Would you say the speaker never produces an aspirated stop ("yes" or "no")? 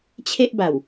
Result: no